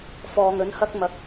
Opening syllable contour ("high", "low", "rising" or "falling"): low